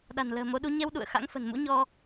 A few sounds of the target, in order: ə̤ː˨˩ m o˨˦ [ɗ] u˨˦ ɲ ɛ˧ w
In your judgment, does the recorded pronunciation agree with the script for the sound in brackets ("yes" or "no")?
yes